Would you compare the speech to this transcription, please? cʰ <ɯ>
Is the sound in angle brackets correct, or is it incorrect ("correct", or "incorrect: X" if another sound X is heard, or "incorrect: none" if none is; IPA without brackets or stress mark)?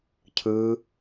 correct